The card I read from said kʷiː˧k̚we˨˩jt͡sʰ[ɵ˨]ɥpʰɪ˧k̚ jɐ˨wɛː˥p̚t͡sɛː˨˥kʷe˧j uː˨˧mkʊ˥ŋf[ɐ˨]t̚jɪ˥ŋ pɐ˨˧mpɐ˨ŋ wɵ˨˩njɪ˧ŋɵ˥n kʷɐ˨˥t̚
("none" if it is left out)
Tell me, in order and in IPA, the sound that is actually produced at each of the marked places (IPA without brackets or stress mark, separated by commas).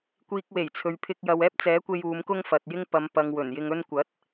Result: ɵ˨, ɐ˨